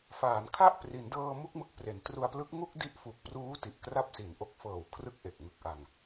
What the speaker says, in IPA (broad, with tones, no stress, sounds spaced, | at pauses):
f aː˩˦ n kʰ a˥˩ ʔ p r i˩˦ n d ɤː˧ m u˥˩ k̚ m ɯ˥˩ k̚ p r e˩˦ n t r u˧ a̯ p l ɯ˦˥ k̚ ŋ u˥˩ k̚ d i˦˥ ʔ f u˨˩ k̚ p r uː˦˥ t i˨˩ ʔ k r a˥˩ p̚ s i˨˩ n ʔ o˦˥ k̚ f ɤː˨˩ w kʰ r ɯ˦˥ k̚ ʔ e˨˩ k̚ ŋ ɯ˨˩ k̚ ʔ a˨˩ ŋ